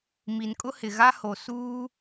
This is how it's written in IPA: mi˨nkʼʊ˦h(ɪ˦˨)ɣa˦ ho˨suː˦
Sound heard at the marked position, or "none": ɪ˨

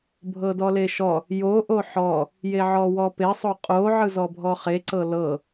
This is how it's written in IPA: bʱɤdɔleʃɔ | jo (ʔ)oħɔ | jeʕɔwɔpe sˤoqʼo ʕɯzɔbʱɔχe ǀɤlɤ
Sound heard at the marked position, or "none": ʔ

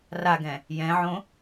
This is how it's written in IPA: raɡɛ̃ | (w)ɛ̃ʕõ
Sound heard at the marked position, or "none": j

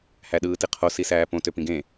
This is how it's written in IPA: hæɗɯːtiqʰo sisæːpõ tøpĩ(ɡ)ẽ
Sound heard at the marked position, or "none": ɡ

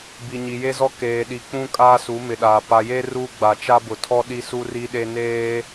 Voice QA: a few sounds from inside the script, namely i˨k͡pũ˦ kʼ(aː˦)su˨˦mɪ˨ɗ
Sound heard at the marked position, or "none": aː˦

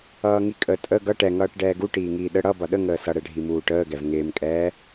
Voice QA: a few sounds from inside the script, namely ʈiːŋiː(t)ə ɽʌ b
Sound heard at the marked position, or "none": ɗ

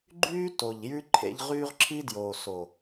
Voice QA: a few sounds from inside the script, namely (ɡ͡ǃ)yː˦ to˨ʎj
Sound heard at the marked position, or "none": ɡ͡ǃ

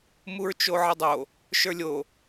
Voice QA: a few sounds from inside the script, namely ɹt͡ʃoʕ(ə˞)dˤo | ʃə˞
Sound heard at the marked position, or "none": ə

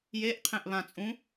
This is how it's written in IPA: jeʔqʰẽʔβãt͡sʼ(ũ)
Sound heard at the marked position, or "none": ũ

